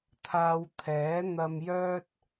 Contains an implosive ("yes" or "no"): no